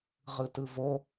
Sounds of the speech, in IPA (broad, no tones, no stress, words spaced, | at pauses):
ʁɯtɯvo